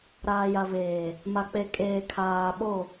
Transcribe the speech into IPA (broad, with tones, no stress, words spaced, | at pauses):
ɾaː˨ja˨veː˨ | ma˨k͡pe˨kʼeː˨ kʰaː˨ ɓo˦˨